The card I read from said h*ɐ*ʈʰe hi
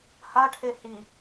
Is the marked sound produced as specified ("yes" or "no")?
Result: no